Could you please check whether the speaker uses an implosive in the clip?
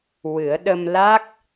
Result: yes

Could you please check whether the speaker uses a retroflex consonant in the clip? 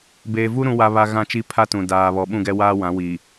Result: no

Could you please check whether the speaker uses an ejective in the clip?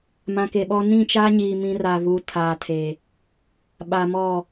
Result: no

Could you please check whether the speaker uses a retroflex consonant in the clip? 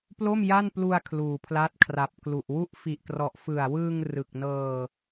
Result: no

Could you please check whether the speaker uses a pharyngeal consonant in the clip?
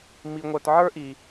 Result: yes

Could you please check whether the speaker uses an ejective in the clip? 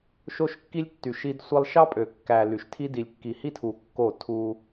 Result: yes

